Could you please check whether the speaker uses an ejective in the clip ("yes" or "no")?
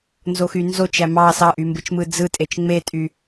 yes